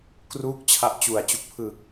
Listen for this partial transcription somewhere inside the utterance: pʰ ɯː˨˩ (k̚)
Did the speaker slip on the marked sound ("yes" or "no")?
no